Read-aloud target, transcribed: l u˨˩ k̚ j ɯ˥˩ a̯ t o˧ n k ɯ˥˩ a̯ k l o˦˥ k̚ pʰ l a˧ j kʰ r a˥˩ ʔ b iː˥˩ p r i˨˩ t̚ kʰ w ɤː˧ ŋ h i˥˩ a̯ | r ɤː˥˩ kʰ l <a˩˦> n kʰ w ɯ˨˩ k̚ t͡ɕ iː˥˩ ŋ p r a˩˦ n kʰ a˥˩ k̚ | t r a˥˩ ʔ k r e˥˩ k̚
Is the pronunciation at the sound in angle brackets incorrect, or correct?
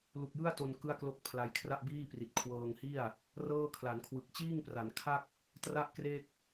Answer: correct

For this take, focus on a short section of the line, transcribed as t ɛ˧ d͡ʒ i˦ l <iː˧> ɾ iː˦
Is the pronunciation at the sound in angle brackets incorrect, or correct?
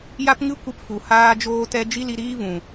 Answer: incorrect: i˧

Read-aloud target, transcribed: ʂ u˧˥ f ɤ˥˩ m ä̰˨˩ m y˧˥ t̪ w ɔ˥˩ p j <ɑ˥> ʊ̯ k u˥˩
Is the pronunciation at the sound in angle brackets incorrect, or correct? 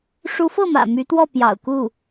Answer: incorrect: ɑ̰˨˩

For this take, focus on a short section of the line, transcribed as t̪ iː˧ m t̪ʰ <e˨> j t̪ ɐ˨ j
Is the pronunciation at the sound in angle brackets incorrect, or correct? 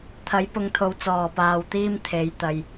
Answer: incorrect: e˨˥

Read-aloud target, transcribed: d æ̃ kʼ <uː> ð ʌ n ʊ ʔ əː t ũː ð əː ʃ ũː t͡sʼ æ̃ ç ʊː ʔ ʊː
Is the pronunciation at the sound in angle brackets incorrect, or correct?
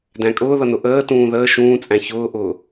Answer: incorrect: ʊː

